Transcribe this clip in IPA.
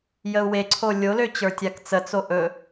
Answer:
j ə u̯ w e ǀʰ o lʲ o l ø t͡ɕ ə˞ tʲ a k t͡s ə t͡s o ʔ ɵ

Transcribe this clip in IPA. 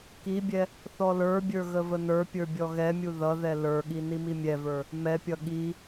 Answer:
k i bʲ ɛ | θ ɔ l ə˞ bʲ ə˞ ɣ ə v ə n ə˞ pʲ ə˞ bʲ ɔ ɣ ɛ mʲ u ð ʌ ð ɛ l ə˞ ɠ i n i m i mʲ ɛ v ə˞ | m ɛ pʲ ʌ ɠ i

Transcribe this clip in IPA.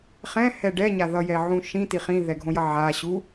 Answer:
χ ɛ̃ h ɛ ɖ ɛ ɲ a ð ʌ j ɛ ʕ ũ ʃ ĩ t i χ ĩ ð ɛ ɡʱ õ j ʌ ʕ a ɕ u

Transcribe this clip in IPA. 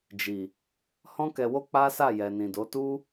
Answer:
d͡ʒ i˨ | h ɔ̃˦ k ɛ˧ w o˦ k͡p a˦ s a˦˨ j ɛ˨ n ĩ˨ d o˨˦ t u˦

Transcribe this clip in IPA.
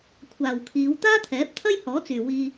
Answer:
kʷʰ aː˨ w kʰ iː˨˧ w t̪ aː˥ t̪ʰ ɛː˨˥ p̚ t̪ʰ ɐ˥ j h ɔː˨˥ t͡s yː˨ w iː˧

